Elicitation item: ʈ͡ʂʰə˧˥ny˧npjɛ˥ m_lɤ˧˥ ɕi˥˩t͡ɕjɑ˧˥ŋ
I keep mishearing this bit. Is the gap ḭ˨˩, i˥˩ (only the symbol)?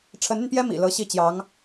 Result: ḭ˨˩